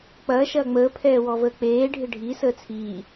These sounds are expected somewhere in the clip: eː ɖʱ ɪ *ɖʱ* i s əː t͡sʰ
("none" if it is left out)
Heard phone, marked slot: ɖʱ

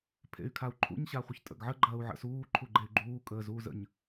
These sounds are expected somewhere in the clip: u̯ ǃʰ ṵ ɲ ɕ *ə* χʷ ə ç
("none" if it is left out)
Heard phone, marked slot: a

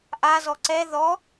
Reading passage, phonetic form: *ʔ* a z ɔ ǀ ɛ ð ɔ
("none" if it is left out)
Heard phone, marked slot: ʔ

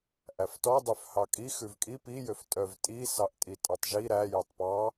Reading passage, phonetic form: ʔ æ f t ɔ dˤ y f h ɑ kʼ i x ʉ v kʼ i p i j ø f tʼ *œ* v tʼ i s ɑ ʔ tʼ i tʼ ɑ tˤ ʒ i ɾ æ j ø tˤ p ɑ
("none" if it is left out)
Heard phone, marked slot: œ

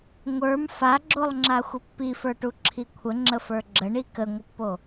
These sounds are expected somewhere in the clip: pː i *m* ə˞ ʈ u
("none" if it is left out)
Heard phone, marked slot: f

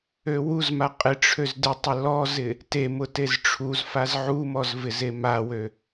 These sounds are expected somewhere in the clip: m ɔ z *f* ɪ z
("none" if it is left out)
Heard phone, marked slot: v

